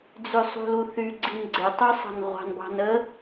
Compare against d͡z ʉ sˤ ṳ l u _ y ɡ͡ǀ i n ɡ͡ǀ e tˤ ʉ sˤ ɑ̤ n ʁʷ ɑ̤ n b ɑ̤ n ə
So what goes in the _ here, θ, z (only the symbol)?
θ